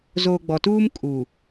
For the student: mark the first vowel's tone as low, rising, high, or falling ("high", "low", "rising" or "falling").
low